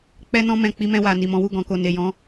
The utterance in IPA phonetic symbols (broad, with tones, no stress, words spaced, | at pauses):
k͡pɛ˧nɔ̃˧mɛ̃˨ k͡pi˧mɛ̃˧wa˨ ni˨mɔ̃˨˦wu˦˨ ɡɔ̃˨ko˨ ne˨jɔ̃˧